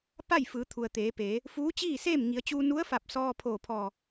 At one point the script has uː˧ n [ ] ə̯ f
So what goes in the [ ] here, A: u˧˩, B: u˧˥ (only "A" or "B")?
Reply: B